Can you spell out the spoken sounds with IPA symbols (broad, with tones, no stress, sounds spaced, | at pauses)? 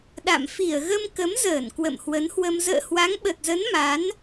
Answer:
ɗ a̰˧˨ m f i˧˩ ə̯ ɣ ə˧ m k ə˨˦ m z əː˧˩ n k w ə̰˧˨ m h w ə˨˦ n h w ə˧ m z ə̰ː˧˨ h w a˨˦ ŋ ɓ ə˨˩ t̚ z ə˨˦ n m a˨˦ n